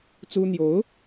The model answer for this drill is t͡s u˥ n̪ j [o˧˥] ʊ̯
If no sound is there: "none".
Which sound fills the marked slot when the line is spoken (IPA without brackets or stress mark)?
o˧˥